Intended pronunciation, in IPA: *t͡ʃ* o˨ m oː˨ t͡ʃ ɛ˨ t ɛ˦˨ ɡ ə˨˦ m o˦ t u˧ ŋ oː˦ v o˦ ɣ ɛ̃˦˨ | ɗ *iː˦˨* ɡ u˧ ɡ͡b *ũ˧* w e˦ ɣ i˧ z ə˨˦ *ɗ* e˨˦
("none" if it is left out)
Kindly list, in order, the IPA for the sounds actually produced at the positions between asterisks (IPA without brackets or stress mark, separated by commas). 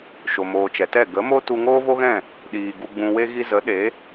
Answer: ʃ, iː˨, ũ˧, ɗ